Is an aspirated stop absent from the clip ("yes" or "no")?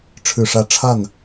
no